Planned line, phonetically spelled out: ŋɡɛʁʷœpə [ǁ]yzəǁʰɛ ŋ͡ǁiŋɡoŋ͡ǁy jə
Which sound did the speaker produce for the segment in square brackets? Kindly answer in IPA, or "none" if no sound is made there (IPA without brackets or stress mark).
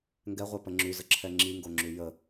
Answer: ŋ͡ǁ